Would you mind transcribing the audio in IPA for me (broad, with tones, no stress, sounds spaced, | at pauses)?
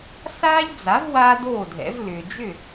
s aː˥ ʎ d͡z a˩˥ v w aː˥ d oː˥˩ dʱ ɛ̰˩˥ v l ʏː˩ d͡ʒ ʏ˥˩